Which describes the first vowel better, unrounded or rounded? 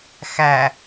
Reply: unrounded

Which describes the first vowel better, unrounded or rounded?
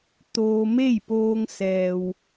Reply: rounded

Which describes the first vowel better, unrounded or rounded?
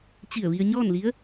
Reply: unrounded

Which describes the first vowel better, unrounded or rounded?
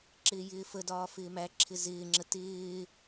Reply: unrounded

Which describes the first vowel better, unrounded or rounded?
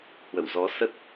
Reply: unrounded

